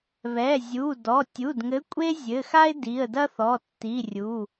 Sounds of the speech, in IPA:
β ɛ˩˧˩ zʲ u˩˧˩ d ɔ˩˧˩ tʲ u˩˧˩ d ŋ ɘ˨˥ kʷʼ e˥ zʲ ɘ˩˧˩ x a˥ ɪ̯ d i˩˧˩ ə̯ d ɐ˥ θ ɔ˩˧˩ tː i˩˧˩ rʲ u˩˧˩

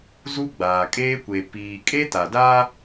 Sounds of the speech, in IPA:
z u˦ ɡ͡b aː˨ kʼ eː˦ kʷ e˨ p iː˨ kʼ e˦ t a˨ d a˦

